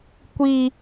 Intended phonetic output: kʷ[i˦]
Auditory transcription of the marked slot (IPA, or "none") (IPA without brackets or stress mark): i˦